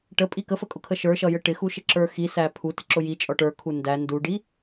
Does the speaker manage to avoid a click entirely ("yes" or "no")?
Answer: no